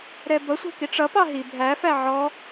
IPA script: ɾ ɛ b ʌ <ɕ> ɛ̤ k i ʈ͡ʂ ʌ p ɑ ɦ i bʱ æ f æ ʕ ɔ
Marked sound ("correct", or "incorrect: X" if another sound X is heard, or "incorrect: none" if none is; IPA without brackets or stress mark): incorrect: sʷ